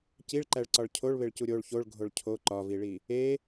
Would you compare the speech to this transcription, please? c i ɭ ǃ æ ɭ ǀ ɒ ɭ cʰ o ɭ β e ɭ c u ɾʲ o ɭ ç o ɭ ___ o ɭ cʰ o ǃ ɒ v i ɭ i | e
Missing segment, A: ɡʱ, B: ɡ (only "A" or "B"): A